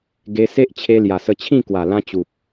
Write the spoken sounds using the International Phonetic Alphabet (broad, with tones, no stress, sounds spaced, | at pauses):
ɡ e˧ s e˦ ʔ t͡ɕʰ e˧ l j a˨˩ s ə˧ t͡ɕʰ ĩ˥˧ k w a˨˩ l ã˧ t͡ɕ u˨ p̚